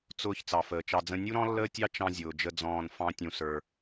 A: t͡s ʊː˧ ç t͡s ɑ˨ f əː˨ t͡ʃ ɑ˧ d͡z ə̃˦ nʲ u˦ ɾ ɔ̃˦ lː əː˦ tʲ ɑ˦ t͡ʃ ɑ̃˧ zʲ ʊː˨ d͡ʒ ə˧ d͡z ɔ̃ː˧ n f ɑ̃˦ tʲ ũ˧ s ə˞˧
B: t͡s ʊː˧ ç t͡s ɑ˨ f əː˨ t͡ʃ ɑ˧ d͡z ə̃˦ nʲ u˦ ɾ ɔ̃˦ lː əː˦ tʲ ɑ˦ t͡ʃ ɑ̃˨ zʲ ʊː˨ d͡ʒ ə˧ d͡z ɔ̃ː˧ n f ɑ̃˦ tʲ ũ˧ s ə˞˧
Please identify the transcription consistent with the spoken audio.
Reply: A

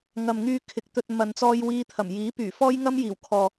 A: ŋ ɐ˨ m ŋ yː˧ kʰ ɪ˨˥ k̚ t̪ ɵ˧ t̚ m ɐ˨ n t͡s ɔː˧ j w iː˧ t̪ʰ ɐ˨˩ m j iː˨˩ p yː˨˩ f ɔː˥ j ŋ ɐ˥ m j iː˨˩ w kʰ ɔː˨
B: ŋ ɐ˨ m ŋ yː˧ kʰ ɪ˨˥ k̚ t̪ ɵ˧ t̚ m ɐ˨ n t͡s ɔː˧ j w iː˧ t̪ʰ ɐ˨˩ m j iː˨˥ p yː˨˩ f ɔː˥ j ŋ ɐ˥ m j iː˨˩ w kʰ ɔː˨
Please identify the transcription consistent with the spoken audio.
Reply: B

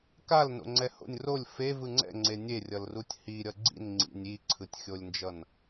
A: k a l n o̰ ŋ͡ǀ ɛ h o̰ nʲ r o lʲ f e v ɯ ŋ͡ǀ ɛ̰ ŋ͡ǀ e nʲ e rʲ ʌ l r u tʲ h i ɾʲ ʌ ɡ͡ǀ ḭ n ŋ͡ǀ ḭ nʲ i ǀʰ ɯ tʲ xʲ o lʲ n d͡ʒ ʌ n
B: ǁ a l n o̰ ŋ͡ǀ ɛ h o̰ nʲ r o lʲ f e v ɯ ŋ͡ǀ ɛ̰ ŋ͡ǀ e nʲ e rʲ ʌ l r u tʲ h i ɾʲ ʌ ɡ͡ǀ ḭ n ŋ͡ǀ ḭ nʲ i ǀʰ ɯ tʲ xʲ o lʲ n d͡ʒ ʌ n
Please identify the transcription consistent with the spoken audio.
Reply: A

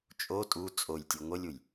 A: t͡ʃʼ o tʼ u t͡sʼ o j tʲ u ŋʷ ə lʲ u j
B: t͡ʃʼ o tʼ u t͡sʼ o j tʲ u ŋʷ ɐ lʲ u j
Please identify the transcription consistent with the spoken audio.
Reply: A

